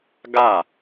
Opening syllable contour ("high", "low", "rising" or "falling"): falling